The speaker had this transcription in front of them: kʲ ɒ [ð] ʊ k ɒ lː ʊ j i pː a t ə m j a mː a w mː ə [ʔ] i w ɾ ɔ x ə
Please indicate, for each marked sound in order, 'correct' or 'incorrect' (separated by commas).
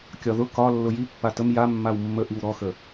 correct, correct